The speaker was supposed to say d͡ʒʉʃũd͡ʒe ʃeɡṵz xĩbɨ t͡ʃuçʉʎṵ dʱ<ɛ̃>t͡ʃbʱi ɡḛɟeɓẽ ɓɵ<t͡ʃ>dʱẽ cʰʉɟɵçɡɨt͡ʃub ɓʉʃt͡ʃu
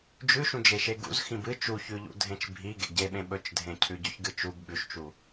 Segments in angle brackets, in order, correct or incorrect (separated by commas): incorrect, correct